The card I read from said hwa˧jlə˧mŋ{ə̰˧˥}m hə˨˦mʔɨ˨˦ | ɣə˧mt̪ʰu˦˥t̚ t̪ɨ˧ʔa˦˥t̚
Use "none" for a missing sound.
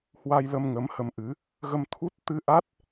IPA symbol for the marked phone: ə˨˦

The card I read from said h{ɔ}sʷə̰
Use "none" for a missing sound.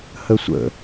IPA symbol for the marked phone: ə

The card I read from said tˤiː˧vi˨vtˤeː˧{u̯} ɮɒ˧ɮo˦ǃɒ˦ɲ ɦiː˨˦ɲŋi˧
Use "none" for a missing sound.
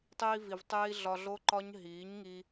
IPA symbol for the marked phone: i̯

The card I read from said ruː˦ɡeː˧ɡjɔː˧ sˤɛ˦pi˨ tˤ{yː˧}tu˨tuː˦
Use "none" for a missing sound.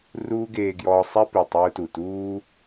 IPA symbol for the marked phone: uː˧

